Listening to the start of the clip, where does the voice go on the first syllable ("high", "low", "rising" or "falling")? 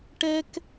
high